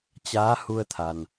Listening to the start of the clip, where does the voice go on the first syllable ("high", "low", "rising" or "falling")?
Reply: rising